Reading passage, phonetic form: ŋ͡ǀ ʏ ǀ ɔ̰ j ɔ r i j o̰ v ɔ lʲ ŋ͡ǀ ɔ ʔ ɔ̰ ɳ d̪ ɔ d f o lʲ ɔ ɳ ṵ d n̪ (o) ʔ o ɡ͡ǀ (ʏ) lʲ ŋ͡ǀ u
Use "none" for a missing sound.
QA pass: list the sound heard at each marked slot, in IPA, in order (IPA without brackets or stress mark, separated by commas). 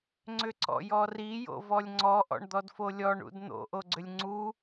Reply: o̰, ʏ